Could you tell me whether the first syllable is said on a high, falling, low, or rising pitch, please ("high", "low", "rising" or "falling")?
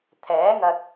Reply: rising